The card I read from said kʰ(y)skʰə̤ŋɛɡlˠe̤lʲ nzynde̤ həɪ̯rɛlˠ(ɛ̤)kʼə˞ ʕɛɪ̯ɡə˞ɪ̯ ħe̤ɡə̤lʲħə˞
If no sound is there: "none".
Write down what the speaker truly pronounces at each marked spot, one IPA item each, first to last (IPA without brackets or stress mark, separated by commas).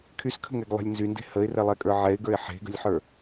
y, ɛ